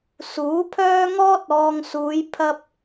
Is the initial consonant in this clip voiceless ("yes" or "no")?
yes